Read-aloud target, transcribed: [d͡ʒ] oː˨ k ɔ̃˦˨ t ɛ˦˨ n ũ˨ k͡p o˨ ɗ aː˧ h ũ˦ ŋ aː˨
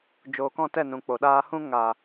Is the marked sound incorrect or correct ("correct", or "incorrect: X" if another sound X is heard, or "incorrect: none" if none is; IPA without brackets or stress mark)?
correct